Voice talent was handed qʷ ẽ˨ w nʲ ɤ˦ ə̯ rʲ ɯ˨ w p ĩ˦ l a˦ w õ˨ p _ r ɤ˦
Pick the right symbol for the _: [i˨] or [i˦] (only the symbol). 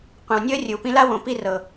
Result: i˦